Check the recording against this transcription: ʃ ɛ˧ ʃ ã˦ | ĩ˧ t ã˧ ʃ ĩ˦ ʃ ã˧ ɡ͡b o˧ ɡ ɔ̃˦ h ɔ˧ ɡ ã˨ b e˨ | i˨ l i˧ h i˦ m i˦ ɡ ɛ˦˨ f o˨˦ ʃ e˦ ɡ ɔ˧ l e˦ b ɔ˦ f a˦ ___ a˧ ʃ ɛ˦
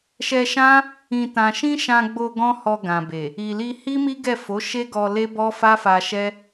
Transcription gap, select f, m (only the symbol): f